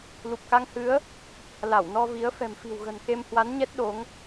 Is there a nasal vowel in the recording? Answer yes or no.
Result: no